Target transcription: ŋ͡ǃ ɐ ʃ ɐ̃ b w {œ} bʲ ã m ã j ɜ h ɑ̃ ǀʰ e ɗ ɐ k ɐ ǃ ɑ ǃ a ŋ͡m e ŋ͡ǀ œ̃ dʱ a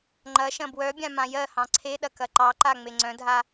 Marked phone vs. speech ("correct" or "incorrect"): correct